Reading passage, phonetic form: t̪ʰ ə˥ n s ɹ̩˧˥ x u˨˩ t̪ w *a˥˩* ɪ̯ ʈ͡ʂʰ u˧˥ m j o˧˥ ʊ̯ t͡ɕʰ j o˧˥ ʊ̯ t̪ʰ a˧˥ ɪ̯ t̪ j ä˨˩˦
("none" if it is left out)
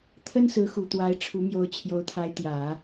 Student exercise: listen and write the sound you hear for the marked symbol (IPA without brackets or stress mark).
a˧˥